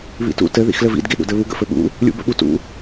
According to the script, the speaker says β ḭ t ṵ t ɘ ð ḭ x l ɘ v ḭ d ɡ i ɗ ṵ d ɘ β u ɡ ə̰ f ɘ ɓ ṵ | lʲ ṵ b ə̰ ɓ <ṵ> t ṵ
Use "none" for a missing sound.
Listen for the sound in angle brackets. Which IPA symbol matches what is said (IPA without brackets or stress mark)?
u